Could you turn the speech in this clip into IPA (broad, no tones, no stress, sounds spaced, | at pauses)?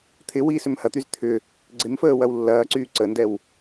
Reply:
t̪ʰ ɪ w iː s ʏ m h ɐ t̪ y z t̪ʰ ʏ | ɡ͡ǀ ɪ m f əː w ɐ w lː ɐː ǀ yː ǀ ə n d ɛ w